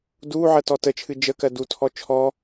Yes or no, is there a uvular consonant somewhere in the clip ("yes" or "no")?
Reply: no